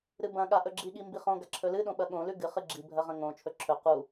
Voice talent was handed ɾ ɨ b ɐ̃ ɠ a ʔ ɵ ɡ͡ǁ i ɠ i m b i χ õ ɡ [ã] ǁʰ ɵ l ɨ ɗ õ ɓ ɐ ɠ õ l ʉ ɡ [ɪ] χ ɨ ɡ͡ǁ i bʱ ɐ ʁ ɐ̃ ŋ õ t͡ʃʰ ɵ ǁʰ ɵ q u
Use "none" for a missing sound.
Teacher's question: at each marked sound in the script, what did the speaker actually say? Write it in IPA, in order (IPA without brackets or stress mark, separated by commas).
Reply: a, ɨ